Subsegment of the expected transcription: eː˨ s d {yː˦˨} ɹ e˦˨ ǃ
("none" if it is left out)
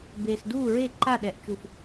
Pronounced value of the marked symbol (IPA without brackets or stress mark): uː˦˨